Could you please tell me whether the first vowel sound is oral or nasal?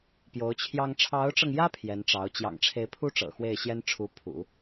oral